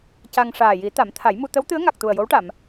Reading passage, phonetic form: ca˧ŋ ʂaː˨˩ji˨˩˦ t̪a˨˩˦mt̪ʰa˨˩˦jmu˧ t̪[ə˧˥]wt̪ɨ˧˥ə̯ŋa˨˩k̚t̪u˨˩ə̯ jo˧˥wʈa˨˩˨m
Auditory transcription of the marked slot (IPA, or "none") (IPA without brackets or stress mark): ə˧˥